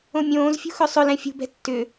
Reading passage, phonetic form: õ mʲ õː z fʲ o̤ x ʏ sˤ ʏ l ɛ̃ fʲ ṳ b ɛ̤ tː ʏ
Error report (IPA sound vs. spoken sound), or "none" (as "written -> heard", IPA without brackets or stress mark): o̤ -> ṳ